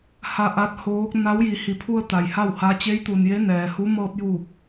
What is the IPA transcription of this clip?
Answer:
h a˧ ʔ a˧˥ t̚ h oː˧˥ k̚ n a˧˥ w j i˩˧ h i˩ pʰ u˧ ə̯ t̪ a˩ j h a˥˨ w h a˧˥ t͡ɕ e˧˥ j t̪ u˩ n j e˧˥ n ɛː˩ h u˧˥ m ɤː˧ p̚ j uː˧˩ k̚

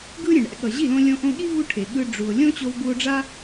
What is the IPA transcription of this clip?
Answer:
ɡ ɯ˦ ɾʲ ẽ˨ ɳ ɛ̰˧ ɠ ʌ˨ ʑ i˦˨ l õ˧ lʲ õ˧ ʔ õ˧ ɠ i˦ v u˦ ʈʰ e˨ ɠ ɯ˦ ɖ͡ʐ u˨ o̯ lʲ õ˦ t͡ɕ o˧ v b u˧ o̯ ɖ͡ʐ a˦

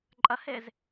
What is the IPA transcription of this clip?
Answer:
ǃʼ ɐ h e z

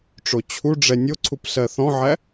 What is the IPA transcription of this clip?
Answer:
ʈ͡ʂ o t͡ɕʰ u ɖ͡ʐ ɛ nʲ o ǀʰ u p s ɜ θ ɔ̃ ʕ æ

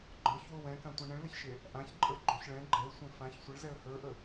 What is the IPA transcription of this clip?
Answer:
ɡ͡ǃ ə˞ ç w o w ɛ̃ k ã tʷ ɛ̃ ɳ ə̃ ɭ l ə ç ʃ e | ʔ ã ç ǃʼ ə˞ ɡ͡ǃ o ç ɭ ɛ̃ ɡ͡ǃ ɛ ʊ̯ sʷ ẽ f ã ç sʷ ə ɭ z ɛ ə̯ h ə˞ ʔ ə

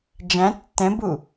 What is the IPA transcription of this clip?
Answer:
d͡ʒ æ̃ tː ɛ̃ b u

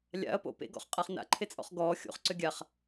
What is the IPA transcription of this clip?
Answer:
lʲ a̰ ɐ̯ p o̰ p ḛ ɡ ɔ̰ χ qʼ a χ n a̰ ǃʰ e t͡sʼ ɔ̰ χ ɡ ɔː xʲ o̰ χ ǀ ø ɡʲ a χ

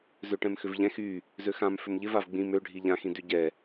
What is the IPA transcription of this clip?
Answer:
z ø ʈ ɛ̃ m x ʏ v ʎ ɛ̃ x y | z ø x ã m f ʏ m ʎ ɪ v a v ɡ͡b ĩ m ø ɖʱ i ʎ ã x ĩ d y ɟ ɛ

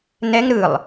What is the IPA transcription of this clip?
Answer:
n ɛ ŋ ɾ ɯ lˠ

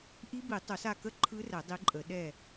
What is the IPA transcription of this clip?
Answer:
ʔ i˦˥ b i˨˩˦ tˤ o˨˩˦ s a˦˨ k ə˦˥ ǃʰ ɯ˦˥ r ɛ˨˩˦ dˤ i˨˦ ǃʼ ə˨˩˦ ɗ ɛ˦˨

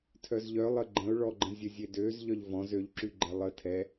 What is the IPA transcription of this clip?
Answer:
tʰ œ z ʎ œ lˠ ə ɡ͡ǃ ə̃ ʊ̯ ɭ ɔ ɡ͡ǃ ə̃ zʲ ə zʲ e d ø z ʎ œ ʎ v ɔ̃ z ø ʎ ǁ y ɡ͡ǃ ɛ lˠ ə tʰ ɛ

